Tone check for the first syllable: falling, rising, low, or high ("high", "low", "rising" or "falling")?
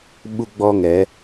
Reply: high